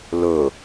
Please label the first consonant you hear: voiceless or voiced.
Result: voiced